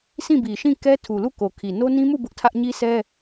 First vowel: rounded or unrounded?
unrounded